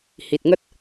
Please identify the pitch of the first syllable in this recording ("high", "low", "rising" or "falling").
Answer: low